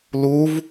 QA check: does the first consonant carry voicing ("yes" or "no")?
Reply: yes